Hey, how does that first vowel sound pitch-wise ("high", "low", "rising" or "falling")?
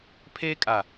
high